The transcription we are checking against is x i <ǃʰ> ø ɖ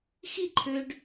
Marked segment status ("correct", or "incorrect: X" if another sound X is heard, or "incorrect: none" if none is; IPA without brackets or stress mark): correct